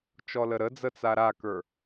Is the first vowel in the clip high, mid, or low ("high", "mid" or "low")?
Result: mid